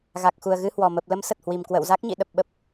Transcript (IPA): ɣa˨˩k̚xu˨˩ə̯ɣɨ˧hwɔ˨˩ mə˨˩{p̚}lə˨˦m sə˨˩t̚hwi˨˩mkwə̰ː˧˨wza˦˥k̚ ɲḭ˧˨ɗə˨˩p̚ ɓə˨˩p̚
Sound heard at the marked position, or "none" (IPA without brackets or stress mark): p̚